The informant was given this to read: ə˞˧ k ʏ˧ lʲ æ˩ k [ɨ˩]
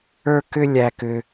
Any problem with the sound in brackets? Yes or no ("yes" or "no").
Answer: yes